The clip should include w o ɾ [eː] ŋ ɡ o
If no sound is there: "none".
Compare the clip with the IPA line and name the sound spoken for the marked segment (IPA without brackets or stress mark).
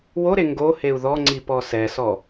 e